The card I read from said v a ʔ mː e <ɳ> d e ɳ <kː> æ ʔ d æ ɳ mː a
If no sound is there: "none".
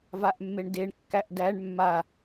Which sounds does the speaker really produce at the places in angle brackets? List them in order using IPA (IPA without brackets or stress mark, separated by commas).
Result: ɳ, kː